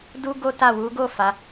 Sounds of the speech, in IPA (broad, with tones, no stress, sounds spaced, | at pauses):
d u˦ ɡ o˦ t a˦˨ w u˨˦ ɡ o˦˨ f a˨˦